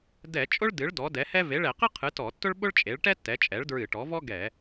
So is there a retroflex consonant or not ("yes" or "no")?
yes